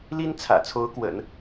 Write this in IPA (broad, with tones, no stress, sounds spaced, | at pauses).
l i˥ n t͡sʰ ä̰˨˩ t͡sʰ o˧˥ ʊ̯ k w ə̰˨˩˦ n